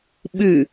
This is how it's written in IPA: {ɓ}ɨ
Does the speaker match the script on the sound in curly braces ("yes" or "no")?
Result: yes